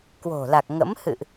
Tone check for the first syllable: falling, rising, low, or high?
low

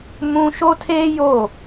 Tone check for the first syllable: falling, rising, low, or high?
high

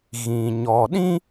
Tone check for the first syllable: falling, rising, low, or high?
low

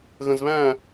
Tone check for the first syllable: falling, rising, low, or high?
low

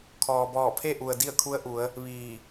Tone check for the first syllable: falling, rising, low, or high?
low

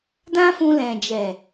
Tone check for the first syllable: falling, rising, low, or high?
high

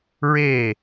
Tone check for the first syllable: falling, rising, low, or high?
falling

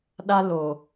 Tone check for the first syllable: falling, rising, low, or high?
high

